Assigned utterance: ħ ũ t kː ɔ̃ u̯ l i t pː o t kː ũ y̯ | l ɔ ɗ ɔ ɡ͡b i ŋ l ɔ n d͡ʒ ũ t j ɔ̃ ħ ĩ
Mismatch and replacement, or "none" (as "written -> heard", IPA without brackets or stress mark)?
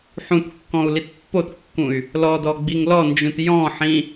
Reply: ɗ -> d